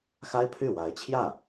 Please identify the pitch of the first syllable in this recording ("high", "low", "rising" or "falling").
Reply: high